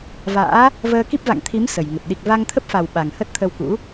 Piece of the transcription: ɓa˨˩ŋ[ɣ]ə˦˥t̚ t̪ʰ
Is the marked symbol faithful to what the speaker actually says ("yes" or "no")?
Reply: no